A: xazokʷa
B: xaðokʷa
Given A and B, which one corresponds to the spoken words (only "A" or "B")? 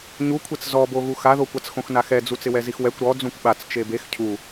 B